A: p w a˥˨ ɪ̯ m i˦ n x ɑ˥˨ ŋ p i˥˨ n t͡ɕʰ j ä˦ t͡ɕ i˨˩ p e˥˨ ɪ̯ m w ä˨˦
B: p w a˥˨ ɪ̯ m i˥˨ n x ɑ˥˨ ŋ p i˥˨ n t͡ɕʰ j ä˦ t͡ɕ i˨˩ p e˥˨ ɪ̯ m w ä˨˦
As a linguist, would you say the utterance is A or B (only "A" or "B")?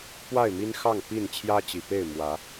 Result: A